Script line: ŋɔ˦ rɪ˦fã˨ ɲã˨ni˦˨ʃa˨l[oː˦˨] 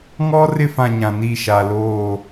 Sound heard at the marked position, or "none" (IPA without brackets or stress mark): oː˦˨